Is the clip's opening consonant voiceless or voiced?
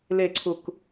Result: voiced